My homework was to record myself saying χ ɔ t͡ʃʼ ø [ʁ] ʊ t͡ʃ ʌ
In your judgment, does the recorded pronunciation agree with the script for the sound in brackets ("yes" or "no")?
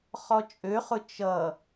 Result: no